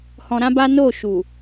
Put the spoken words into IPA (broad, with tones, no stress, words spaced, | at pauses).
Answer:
hɔ̃˧ɾã˦ba˦ no˦˨ʃu˨